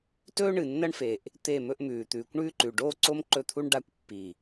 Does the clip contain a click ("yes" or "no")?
yes